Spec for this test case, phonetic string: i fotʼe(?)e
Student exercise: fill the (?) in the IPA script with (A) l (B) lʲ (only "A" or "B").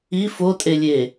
B